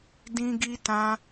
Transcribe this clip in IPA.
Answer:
d ĩ˦ ɡ i˦ t ã˦

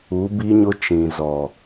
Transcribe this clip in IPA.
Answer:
u˨˦ b i˦ ɲ ʊ˦ t͡ʃ ĩ˨ z ɔ˨

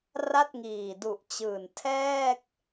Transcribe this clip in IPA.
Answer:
r a˥˩ t̚ ŋ iː˨˩ d u˨˩ ʔ t͡ɕ ɯː˨˩ n tʰ ɛː˥˩ k̚

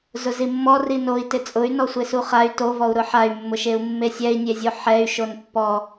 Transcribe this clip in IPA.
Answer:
z ʊ z i mː ɔ r i n o i̯ t ɪ t͡sʼ ʊ y̯ n ɔ sʷ e s u χ a y̯ t o v ɔ u̯ ɾ ʊ ħ a y̯ mː ʊ ʃ e u̯ mː e sʲ ɛ i̯ nʲ e zʲ o ħ ɛ y̯ ʃ o n pː ɔ

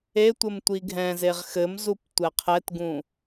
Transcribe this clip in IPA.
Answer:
e tʷ ɘ m tʷ i ɡʱ ɛ̃ z e ʁ x ɘ m z u p tʷ ɛ qʰ ɛ t ɡ ũ

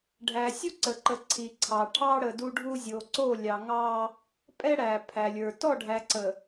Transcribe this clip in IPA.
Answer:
ɖʱ æ˨ sʲ u˦ ǀ ə˨ ǃ ə˨ ǀʰ i˨ ǀʰ ɑ˨ ʈʰ ɑ˦ ɽ ə˨ d u˦ ɖʱ u˦ zʲ o˨ ǀ o˦˨ lʲ ɑ˨ ŋ ɑ˦ | pʼ ɛ˦ ɽ æ˨ pʰ æ˨ lʲ ə˞˨ t ɔ˦˨ ɖʱ æ˨ ǀ ə˨

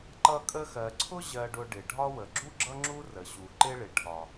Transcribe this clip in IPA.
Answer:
ǃ ʌ˦ kʼ ə˦ x ɜ˨ ǀʰ ʊ˥ ʑ ɜ˨ ɖ ʊ˨ ɖ ɪ˩ ɖʱ ɒ˦ w ə˩ ɡ͡ǁ u˥ ɡ͡ǁ ʌ˥ ŋ͡ǁ u˥ r ə˩ ɕ u˩ ǃ ɪ˦ ɭ ɪ˩ ʈʰ ɒ˩

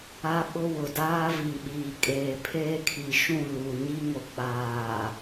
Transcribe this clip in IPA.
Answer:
a˦ ɓ ʊ˦ w ʊ˨ d aː˦ v i˨ ɓ iː˨ kʼ eː˨ pʰ eː˦ kʰ i˨ ʃ ũ˦˨ l u˨ ɲ i˦ ŋ o˨ k͡p aː˨

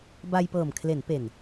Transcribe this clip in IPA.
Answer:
b a˧ j p ɤː˨˩ m kʰ l e˩˦ n p e˨˩ n

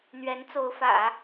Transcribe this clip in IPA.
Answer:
n̪ ɥ ɛ˧˥ n t͡s o˧˥ ʊ̯ f ä̰˨˩˦

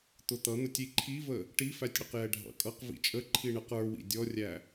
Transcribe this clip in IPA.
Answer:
t̪ ʊ t̪ ʌ n̪ ʊ tʲ i ǃʰ i v ə | ʈ i f æ tʲ ɽ ə q j ɛ ɖʱ ɑ̰ kʼ ʌ q v ḭ t͡ʃʼ ə ǃʰ i ɳ ə q ə˞ w ḭ dʲ ɔ rʲ æ

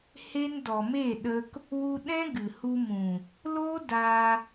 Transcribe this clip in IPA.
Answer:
h e˦ n d ɔ˨ m e˦˨ ɗ ə˦ k | w u˧ ɗ ɛ̃˦ ɡ ɨ˨ h u˧ m ũ˨ | l oː˦ d aː˧

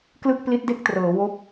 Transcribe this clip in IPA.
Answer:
k l ɯ˥˩ k̚ p l i˦˥ t̚ d e˥˩ k̚ t r ɤː˩˦ w o˦˥ k̚

